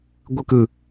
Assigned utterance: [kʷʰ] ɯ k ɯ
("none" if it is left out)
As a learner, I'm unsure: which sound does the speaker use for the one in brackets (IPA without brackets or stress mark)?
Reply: ɡʷ